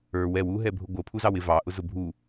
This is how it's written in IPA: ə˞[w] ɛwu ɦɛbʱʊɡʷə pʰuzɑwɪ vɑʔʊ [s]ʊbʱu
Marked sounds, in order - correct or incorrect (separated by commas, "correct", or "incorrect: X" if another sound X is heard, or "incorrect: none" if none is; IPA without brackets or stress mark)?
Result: correct, incorrect: z